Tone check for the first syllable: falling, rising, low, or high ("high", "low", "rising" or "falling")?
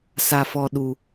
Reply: low